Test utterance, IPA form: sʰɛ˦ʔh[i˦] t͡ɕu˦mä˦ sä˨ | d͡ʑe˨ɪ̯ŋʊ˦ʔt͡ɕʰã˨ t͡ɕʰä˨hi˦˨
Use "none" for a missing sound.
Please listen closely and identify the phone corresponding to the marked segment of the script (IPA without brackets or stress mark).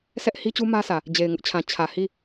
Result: i˦